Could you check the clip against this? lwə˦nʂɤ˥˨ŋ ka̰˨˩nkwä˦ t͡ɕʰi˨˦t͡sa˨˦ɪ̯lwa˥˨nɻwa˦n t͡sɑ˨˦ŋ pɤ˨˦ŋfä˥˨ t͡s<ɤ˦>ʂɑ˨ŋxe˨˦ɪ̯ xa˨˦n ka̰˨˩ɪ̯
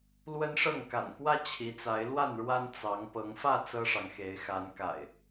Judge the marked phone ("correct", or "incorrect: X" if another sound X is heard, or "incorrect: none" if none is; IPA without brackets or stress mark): correct